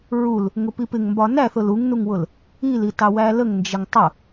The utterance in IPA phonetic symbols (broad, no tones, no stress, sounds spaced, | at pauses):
ɹ u l | ŋ ʊ p i p ɪ ŋ m b ɒ n æ θ ʊ l u ŋ n u ŋ w ʊ l | i l i t ɑ w æ l ə ŋ n d͡ʒ ə ŋ tˤ ʊ